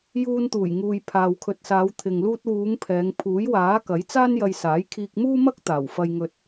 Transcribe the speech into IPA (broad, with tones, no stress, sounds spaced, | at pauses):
j uː˧ n t̪ uː˨˩ j ŋ uː˨ j pʰ aː˨ w kʰ ɵ˨ t̚ s aː˨˧ w t̪ʰ ɪ˨ ŋ l uː˧ t̚ w uː˨˧ ŋ pʰ ɛː˨˧ ŋ pʰ uː˨˥ j w aː˨˥ k ɐ˨˥ j t͡s aː˥ n j ɐ˧ j s aː˨˥ j kʰ iː˧ k̚ m uː˥ m ɐ˥ k̚ t̪ aː˨˩ w f ɐ˧ j ŋ ɵ˧ t̚